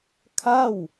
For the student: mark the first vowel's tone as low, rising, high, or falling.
falling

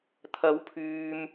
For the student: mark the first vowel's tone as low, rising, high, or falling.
rising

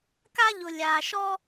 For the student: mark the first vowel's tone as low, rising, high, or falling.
high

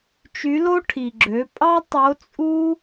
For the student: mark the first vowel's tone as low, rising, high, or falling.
rising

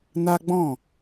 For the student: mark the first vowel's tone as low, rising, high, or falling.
high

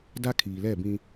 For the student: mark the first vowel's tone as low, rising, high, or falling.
high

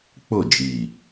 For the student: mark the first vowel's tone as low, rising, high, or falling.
falling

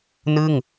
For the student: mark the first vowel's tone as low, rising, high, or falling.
falling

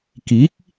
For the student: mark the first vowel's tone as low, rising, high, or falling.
rising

